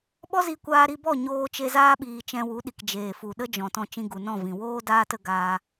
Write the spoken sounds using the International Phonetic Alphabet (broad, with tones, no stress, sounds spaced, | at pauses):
ɓ ɔ˦ z i˧ kʷ aː˧ ɾ i˧ b ɔ˦˨ ɲ oː˧ t͡ʃ e˧ z aː˦ ɓ iː˨ t͡ʃ ɛ̃˧ w u˨˦ ɗ i˨ k d͡ʒ eː˨ f u˨ ɗ ə˦ d͡ʒ ɔ̃˨ t ɔ̃˧ t͡ʃ ĩ˧ ɡ u˨ n ɔ̃˦˨ v ĩ˨ w oː˦ d aː˦ t ə˧ ɡ aː˦